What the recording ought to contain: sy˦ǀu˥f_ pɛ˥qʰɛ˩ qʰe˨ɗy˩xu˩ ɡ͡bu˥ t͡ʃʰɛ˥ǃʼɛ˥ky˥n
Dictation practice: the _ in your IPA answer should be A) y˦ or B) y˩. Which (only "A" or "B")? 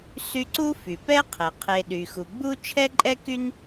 B